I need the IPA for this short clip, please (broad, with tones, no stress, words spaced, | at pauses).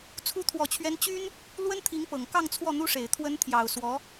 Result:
t͡sʰu˧˥t̪ʰwɔ˨˩t͡ɕʰɥɛ˧˥n t͡ɕy˥n | lwə˥nt̪ʰi˧˥ŋpɤ˨˩ŋ kɑ˥˧ŋ t͡sʰwɔ˥˩n̪u˥ʂe˨˩ɪ̯ t̪ʰwə˧˥nt̪ʰjɑ˨˩ʊ̯swɔ˧˥